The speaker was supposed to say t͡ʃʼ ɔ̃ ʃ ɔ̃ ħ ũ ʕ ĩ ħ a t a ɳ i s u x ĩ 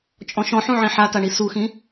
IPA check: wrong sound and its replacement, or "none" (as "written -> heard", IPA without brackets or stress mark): none